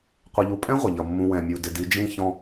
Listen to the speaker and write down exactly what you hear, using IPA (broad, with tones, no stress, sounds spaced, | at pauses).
qʷ ʌ˨ ʎ u˨ pʼ ɛ̃˦ ʁʷ ʌ˨ ʎ ʌ˨ mː ũ˨ w ɛ̃˨ mʲ u˨ d ɪ˨ d i˨˦ d͡ʒ ĩ˦ ç ɔ̃˦